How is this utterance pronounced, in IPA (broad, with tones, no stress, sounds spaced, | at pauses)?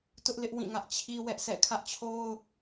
t ʊ˦ ʔ l ɪ˦ ʔ w ĩ˦˨ ŋ ä˦ ʔ t͡ɕʰ i˦ w ɛ˦ ʔ sʰ ɛ̰˦˨ kʰ ä˦ ʔ t͡ɕʰ o˦ ʊ̯